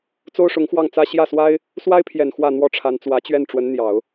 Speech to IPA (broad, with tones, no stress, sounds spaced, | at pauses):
t͡s o˥ ʊ̯ ʂ ʊ˧˥ ŋ x w ɑ˥˩ ŋ t͡s ä˥ ɕ j ä˥˩ s w a˥ ɪ̯ | s w a˥ ɪ̯ pʰ j ɛ˨˩ n x w ä˥˩ n̪ w ɔ˥ ʈ͡ʂʰ a˧˥ n t͡s w ä˧˥ t͡ɕ ɥ ɛ˥˩ n ʈ͡ʂ w ə˧˥ n n̪ j ɑ˨˩˦ ʊ̯